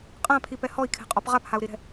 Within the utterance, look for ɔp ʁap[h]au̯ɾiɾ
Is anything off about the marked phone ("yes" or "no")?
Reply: no